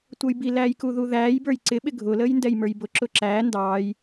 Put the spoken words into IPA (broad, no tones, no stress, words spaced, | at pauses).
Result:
tʷʌjbilæːj kuðuðæːjbə˞j ǀɪ ɓɪɡʱʊləːj ndɛjmə˞jbʊǁʊ ǁæː ndɑːj